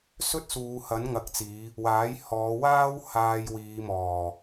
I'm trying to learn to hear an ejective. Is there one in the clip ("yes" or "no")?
no